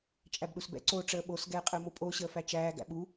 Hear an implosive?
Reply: yes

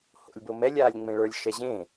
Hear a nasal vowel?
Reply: yes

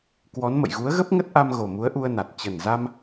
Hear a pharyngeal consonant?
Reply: no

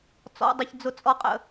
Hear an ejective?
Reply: yes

